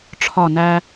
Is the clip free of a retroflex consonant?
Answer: no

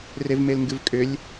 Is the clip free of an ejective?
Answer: no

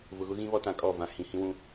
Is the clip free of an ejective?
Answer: no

